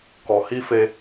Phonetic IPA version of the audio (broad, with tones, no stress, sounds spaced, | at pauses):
k ɔ˨ h i˦ f e˦